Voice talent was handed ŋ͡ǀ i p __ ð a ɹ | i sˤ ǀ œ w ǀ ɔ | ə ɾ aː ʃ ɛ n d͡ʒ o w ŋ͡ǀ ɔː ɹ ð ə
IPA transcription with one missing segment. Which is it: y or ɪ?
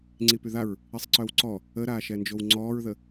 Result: y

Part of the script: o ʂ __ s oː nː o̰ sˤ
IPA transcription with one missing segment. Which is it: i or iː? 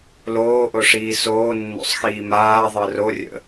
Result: iː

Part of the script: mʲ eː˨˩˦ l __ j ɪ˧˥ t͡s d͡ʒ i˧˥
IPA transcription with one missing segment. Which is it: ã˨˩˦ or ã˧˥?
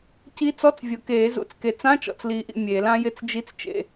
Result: ã˧˥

